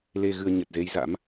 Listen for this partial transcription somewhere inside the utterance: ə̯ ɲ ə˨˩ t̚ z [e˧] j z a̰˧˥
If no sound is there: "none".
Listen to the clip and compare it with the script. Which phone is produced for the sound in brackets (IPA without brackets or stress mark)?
e˧